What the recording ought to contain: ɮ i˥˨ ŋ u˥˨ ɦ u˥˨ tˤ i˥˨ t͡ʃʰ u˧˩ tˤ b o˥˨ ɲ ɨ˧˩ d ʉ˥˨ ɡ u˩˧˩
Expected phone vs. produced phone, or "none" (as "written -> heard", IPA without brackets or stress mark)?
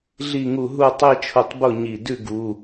ɨ˧˩ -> i˧˩